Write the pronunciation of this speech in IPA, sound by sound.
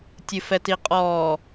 tʲ ɨ f ɛ t i qʼ ɔ

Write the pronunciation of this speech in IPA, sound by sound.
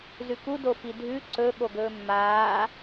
z ʉ k u d o f i dʱ ʉ ǀ ɵ ɠ o ɡ ɵː mː aː

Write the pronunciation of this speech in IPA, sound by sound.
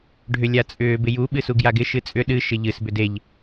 ɖʱ ʏ lʲ a t͡sʼ ʏː b ɪ j u ɓ ɨ s u ɡ j a ɡ ɪ ʃ ɨ t͡sʼ ʏ ɗ ɨ ʃ ɪ ʎ ɨ s b ʏ d e ʎ

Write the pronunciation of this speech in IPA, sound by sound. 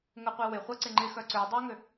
ŋ ə qʷ i w ɪ χʷ ɐ ǀ ɪ ŋ͡ǃ ɪ x œ ǀ ø dˤ a ŋ ʏ

